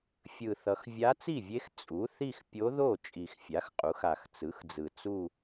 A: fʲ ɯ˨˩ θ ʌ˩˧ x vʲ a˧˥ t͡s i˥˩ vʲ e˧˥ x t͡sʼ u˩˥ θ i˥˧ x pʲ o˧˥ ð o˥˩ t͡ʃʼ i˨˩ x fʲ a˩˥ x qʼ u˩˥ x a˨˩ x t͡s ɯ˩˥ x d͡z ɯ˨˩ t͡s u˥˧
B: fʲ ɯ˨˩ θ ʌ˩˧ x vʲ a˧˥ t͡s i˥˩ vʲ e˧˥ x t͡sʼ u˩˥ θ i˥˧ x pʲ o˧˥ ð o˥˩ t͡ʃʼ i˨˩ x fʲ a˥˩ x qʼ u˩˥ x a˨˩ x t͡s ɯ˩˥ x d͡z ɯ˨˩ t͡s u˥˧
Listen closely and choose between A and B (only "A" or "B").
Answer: A